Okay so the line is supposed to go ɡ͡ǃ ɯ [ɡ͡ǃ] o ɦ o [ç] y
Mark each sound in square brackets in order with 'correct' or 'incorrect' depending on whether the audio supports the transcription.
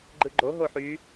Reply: correct, incorrect

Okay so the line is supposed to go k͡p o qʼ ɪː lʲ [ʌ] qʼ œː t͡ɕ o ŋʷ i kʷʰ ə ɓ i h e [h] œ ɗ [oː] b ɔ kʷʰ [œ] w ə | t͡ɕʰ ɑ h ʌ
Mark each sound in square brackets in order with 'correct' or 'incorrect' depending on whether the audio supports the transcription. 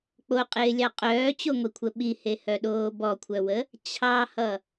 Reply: incorrect, correct, correct, correct

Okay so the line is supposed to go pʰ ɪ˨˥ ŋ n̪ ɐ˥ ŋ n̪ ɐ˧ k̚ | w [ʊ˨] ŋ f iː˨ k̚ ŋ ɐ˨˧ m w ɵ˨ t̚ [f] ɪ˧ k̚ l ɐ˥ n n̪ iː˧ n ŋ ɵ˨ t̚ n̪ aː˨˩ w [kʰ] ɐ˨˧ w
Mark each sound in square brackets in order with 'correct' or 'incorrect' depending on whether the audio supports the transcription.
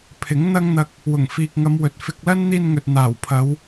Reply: incorrect, correct, incorrect

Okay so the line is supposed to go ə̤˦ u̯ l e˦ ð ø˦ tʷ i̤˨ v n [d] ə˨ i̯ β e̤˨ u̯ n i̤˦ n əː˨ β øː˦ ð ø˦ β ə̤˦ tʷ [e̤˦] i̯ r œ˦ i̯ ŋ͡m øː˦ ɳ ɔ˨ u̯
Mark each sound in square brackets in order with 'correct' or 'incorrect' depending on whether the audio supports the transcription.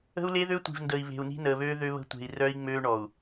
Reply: correct, incorrect

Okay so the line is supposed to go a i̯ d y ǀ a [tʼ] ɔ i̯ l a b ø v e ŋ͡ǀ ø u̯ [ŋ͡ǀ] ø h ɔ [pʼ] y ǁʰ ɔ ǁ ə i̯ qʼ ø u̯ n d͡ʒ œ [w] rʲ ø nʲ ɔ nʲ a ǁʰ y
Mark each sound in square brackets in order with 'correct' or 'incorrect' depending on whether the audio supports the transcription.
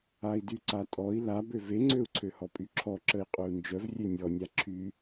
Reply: correct, incorrect, correct, incorrect

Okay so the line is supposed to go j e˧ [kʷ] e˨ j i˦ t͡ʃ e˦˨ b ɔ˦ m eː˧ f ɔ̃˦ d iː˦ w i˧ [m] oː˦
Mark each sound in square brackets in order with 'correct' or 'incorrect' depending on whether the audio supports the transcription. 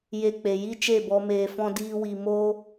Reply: incorrect, correct

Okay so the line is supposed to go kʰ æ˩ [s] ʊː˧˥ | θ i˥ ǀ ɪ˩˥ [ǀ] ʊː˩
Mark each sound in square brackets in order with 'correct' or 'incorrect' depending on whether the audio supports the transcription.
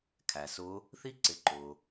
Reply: correct, incorrect

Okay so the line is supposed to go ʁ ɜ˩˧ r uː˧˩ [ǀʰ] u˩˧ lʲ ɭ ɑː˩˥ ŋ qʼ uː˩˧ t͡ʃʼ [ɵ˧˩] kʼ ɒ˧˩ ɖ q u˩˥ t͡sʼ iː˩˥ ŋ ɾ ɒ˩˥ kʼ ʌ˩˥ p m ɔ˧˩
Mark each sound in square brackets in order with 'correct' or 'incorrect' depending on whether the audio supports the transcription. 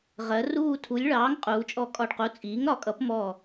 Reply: incorrect, incorrect

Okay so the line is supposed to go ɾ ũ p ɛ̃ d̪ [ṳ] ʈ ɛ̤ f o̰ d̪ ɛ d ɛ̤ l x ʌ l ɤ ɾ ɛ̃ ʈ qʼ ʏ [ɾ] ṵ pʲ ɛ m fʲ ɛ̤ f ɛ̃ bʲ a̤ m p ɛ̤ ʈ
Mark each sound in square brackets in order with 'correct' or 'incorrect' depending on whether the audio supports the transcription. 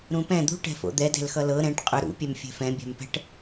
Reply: correct, correct

